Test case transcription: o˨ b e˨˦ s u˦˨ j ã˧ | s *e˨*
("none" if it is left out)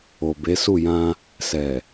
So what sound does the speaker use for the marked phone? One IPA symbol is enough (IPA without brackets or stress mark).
ɛ˨